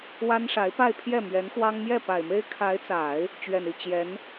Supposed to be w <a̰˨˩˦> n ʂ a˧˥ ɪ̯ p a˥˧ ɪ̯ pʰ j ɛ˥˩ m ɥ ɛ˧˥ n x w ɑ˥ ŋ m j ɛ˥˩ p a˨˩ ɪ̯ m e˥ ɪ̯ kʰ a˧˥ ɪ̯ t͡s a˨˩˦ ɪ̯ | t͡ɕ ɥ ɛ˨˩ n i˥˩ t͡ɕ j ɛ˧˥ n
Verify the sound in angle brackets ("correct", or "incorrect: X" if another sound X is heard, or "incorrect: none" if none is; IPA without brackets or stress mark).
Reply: incorrect: a˥